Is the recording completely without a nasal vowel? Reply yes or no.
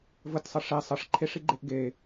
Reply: yes